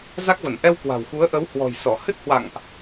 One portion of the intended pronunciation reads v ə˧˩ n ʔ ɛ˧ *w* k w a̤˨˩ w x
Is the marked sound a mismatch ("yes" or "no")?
no